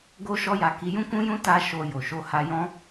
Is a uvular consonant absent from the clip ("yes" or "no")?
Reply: yes